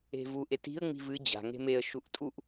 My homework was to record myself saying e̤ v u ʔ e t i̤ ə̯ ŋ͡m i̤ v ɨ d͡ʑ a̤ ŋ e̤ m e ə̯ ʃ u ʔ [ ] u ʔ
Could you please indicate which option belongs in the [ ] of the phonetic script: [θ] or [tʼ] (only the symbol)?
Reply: tʼ